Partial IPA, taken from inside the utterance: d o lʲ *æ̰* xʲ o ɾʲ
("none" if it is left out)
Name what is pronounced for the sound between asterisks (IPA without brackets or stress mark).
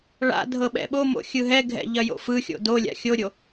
a̰